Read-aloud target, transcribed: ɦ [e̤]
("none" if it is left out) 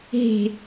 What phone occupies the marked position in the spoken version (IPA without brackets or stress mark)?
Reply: e̤